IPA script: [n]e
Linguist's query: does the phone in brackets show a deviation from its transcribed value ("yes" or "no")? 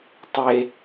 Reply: yes